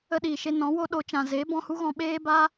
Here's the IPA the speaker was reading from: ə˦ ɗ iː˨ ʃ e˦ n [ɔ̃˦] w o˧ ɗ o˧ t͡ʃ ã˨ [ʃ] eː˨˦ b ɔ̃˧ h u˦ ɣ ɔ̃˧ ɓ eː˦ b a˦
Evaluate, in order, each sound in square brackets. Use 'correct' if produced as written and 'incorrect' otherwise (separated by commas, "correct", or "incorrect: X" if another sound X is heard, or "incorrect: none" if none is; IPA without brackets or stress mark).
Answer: incorrect: ɔ̃˨˦, incorrect: z